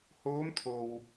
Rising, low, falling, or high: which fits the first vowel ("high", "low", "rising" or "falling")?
rising